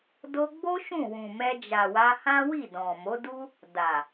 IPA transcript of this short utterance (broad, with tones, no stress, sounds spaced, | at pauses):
d o˧ ɡ͡b o˦ ʃ ũ˦˨ w ũ˨ m ɛ˧ d͡ʒ a˨ w a˧ h ã˦ w i˦˨ d ɔ̃˨ m o˨˦ d u˦ | d a˨